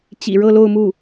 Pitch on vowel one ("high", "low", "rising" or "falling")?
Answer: low